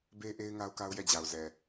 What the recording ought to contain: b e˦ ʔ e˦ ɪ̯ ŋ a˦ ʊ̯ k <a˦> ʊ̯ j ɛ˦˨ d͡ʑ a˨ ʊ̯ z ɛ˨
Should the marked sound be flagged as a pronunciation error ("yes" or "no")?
no